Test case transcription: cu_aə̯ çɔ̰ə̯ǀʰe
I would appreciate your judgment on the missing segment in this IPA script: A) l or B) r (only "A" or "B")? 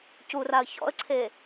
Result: B